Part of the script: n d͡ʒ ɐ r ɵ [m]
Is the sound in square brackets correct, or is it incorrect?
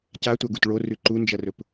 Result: incorrect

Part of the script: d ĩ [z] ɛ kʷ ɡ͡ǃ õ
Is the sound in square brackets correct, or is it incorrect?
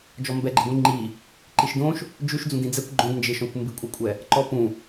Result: incorrect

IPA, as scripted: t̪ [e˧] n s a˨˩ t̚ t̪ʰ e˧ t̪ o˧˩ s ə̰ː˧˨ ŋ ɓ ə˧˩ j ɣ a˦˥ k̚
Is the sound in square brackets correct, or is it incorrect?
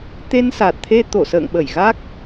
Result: correct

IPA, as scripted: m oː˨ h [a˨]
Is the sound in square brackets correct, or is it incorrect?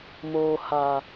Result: correct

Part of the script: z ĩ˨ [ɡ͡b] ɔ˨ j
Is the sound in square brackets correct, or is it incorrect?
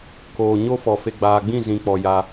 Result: incorrect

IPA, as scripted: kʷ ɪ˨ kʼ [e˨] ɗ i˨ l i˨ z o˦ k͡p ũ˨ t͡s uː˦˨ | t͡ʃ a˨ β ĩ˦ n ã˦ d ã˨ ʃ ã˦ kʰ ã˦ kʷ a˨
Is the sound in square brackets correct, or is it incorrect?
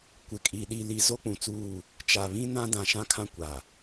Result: incorrect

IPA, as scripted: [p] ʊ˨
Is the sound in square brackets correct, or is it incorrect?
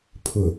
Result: incorrect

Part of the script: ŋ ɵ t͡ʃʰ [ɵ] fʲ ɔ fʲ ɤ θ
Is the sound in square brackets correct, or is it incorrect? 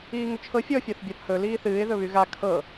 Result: incorrect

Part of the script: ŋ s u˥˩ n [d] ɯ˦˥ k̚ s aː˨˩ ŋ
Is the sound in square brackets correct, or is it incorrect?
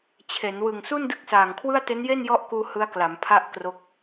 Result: correct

